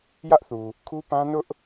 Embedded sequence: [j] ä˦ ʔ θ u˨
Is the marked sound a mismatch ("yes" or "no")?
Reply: no